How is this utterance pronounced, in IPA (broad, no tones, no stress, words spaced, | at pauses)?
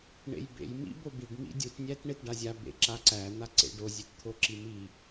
ɳḛjbḛj mḭbobiɖ mḭdʲut nʲætɳetɖazʲa bḛǁaǀæ n̪aǀḛɖo zʲett̪ʰoǁimi